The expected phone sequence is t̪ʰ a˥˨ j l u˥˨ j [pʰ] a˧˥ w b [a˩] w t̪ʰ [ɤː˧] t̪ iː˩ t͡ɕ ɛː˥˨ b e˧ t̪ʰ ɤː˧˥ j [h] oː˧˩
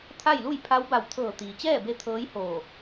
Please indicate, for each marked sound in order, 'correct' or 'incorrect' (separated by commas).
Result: correct, incorrect, incorrect, correct